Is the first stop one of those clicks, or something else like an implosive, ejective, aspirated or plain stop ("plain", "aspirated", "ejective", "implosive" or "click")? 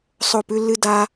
plain